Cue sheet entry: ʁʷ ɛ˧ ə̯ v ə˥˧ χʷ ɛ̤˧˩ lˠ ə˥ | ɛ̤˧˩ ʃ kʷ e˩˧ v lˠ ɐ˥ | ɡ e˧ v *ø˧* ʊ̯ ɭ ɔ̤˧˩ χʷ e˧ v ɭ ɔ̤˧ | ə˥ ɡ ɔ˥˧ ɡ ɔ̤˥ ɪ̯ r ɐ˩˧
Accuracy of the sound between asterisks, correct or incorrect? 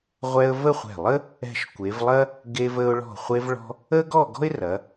incorrect